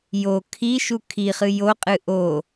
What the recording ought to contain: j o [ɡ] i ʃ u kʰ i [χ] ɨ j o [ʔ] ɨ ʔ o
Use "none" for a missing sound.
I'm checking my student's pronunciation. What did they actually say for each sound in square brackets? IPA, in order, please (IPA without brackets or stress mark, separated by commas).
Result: kʰ, χ, qʼ